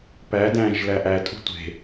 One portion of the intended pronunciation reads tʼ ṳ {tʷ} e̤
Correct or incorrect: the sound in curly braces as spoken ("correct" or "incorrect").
correct